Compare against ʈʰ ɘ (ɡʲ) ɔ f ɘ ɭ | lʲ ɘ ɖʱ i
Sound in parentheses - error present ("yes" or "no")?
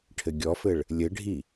no